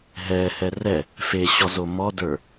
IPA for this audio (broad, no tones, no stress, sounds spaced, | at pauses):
ɦ ɛ h ɛ r ɛ | f e ɕ ɔ z o m ɔ d ə˞